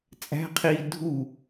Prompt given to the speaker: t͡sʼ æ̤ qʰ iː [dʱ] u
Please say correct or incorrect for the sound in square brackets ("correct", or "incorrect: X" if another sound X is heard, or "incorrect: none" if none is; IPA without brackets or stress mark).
correct